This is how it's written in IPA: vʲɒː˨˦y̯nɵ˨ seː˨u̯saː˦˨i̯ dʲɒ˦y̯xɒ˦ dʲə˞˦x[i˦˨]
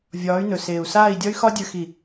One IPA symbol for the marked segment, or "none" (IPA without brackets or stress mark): i˦˨